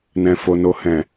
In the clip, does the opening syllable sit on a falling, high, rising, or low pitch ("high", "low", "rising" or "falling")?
low